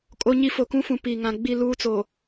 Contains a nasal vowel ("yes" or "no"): yes